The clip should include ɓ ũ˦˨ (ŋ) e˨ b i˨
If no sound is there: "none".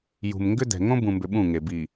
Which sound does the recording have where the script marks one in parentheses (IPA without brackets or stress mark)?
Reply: ŋ